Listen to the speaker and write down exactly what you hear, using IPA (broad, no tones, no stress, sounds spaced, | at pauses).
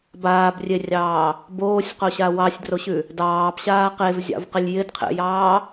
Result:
b aː b rʲ e rʲ ɑː | b oː sʲ q o ɕ a w ɑ sʲ d r o ɕ ʉ | d ɑː b ɕ aː q e v zʲ ɑ̰ v q ɪ lʲ j ɪ d qʰ ḛ j ɑː